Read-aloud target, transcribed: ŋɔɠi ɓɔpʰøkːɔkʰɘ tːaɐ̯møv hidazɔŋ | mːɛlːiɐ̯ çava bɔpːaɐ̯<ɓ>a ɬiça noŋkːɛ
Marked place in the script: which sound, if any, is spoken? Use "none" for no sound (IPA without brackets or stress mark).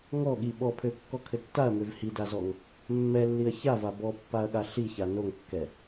ɠ